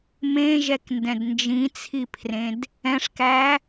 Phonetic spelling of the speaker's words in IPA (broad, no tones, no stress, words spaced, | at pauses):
mẽʒɛkndɛ̃d nd͡ʒĩt͡sʰipʰrẽd | ɛ̃ʂkæ